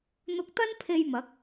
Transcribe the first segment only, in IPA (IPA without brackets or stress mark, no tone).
n̪